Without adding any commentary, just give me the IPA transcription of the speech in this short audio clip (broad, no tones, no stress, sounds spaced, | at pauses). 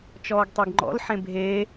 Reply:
t͡ʃ ɔː ɡ tˤ e ɡ ŋ͡ǃ ɔ̰ l ħ ẽ bʱ eː